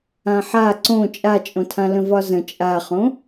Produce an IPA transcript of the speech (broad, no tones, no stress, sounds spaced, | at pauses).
ã ħ a ǀ õ t͡ʃʼ a t͡ʃʼ õ tʰ ã l ə̃ v ɒ z ə̃ t͡ʃʼ a χ õ